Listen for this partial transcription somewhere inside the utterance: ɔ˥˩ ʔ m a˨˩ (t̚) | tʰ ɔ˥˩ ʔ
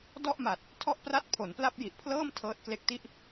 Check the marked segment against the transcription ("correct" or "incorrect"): correct